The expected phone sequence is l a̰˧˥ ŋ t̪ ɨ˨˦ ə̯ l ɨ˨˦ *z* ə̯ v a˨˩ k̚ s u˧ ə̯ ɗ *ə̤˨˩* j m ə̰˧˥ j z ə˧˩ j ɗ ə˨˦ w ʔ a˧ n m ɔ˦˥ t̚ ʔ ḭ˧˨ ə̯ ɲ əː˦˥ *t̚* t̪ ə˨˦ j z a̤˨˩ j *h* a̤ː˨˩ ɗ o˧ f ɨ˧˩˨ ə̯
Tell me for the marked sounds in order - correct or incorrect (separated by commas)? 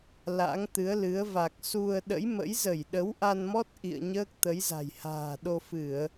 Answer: incorrect, incorrect, incorrect, correct